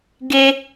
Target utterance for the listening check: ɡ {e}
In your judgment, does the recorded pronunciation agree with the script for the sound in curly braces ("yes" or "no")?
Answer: yes